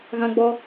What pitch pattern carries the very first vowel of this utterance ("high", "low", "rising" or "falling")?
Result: high